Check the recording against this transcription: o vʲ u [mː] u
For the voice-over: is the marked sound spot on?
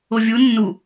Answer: no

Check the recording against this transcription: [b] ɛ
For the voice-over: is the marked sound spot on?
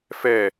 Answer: no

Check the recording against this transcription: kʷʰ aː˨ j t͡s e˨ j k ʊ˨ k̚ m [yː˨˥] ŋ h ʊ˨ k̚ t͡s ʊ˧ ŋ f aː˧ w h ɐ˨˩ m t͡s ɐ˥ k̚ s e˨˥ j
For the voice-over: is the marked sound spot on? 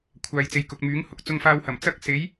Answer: yes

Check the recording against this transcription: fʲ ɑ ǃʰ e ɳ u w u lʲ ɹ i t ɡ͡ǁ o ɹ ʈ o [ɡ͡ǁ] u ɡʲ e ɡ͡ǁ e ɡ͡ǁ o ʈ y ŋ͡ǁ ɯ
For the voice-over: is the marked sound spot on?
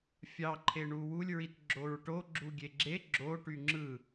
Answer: yes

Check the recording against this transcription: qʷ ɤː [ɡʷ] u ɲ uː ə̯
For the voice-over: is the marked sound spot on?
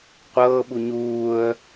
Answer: no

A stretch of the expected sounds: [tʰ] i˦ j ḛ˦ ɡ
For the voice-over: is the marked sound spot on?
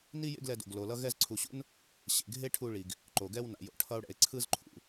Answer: no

